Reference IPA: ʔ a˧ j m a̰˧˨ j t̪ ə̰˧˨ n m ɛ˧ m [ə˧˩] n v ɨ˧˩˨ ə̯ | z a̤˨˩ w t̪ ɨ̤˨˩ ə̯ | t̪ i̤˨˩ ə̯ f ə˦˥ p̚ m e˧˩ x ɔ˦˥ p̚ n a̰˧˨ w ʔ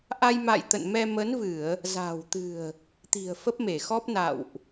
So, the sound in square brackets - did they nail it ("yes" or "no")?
no